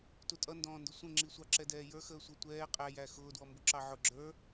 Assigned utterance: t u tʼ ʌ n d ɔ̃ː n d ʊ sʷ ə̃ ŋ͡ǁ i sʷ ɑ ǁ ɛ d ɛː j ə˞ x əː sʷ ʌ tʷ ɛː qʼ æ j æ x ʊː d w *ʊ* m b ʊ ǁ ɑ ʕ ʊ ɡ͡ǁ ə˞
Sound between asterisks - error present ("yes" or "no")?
yes